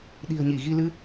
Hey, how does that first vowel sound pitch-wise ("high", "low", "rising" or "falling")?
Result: low